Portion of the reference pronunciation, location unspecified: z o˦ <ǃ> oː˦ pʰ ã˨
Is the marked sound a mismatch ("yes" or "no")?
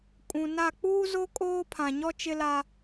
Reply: yes